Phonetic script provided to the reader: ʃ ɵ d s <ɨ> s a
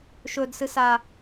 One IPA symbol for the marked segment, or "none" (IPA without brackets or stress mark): ɨ